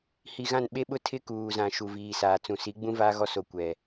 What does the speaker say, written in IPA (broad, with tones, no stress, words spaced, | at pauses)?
hi˨ɣã˦˨n ɓe˦ɓʊ˦tʰɪ˦ kuː˨zã˨ ʃu˨viː˨saː˨ t͡sũ˨si˨˦ ɡ͡bũ˦ vaː˦ɣɔ˦so˨ kʷɛ˨